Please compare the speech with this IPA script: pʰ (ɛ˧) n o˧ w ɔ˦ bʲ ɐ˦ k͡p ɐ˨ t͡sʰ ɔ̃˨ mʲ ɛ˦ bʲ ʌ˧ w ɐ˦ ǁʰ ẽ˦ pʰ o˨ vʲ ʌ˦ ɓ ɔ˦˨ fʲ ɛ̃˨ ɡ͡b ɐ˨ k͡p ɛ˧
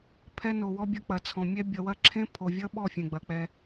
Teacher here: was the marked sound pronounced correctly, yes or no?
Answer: no